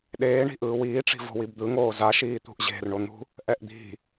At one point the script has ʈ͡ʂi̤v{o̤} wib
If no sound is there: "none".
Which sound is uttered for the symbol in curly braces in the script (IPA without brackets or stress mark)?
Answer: o̤